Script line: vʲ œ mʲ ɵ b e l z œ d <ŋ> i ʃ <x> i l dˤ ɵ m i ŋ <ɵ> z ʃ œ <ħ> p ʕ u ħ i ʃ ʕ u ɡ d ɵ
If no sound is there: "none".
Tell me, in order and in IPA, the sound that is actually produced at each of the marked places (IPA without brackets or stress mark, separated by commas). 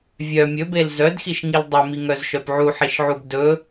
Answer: x, ŋ, œ, none